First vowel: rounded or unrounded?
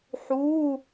rounded